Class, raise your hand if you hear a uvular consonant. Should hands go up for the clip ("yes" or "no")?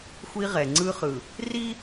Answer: yes